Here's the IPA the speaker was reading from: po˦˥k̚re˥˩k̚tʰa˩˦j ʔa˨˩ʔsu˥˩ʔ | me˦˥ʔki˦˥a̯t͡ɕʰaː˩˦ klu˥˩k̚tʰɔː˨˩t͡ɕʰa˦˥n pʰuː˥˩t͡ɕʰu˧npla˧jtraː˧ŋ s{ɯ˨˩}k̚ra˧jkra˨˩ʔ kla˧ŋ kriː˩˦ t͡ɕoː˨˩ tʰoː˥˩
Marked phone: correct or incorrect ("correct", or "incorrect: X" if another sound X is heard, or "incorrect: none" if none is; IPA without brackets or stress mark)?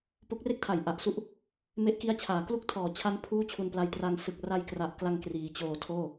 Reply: correct